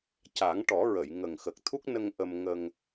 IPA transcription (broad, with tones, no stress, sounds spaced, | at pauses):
c a˨˩˦ ŋ ʈ ɔ˨˩˦ ɹ ə˨˩˨ j ŋ ə˨˩ ŋ x ə˨˩ k̚ t̪ʰ u˦˥ k̚ n ə˧ ŋ ʔ ə˧ m ŋ ə˧ ŋ